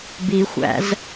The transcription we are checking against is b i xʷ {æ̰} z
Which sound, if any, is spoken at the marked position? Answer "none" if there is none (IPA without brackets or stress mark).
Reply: æ̰